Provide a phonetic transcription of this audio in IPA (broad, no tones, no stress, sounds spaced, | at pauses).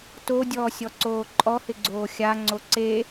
t o dʲ ɔː sʲ ɔ ǀ oː ǃʼ ɔ h ɪ ɡ͡ǀ oː xʲ a ŋ͡ǀ o ǀ e